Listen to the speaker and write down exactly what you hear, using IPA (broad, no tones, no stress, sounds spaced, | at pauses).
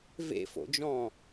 v ḛ f o̰ d͡ʒ ɔ̃